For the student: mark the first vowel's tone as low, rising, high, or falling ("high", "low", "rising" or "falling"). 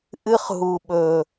high